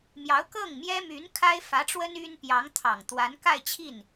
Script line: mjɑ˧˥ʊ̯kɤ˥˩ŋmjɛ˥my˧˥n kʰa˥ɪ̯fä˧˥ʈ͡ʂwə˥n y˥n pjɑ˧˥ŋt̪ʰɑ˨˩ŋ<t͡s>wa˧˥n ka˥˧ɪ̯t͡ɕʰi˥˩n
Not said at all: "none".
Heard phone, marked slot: t̪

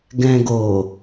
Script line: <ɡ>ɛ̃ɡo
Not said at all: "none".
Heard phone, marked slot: ɡ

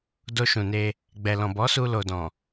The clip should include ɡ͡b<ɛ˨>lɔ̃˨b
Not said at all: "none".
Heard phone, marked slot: ɛ˨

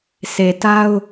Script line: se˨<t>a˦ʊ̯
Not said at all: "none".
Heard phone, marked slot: t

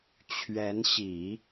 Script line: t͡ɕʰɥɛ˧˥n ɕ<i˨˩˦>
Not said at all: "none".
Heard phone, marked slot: i˨˩˦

